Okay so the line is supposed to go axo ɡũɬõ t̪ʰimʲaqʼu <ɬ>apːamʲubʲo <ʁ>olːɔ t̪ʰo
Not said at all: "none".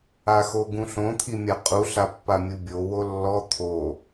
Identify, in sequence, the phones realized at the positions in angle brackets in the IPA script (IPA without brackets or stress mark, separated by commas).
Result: ɬ, w